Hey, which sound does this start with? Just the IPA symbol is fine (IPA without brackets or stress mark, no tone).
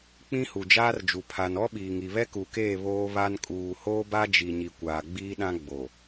k͡p